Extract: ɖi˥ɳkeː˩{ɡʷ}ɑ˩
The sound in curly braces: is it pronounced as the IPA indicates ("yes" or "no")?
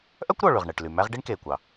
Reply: no